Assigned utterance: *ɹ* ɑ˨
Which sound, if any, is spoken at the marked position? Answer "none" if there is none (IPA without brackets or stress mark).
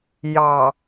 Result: j